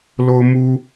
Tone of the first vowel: high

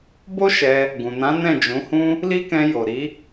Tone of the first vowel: high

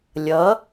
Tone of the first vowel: rising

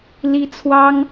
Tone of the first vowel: high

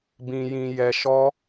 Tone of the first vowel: low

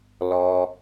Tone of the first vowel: low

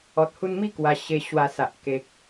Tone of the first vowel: low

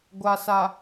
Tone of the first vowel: low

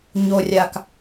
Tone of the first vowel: low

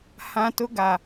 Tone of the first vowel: high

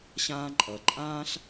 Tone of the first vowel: high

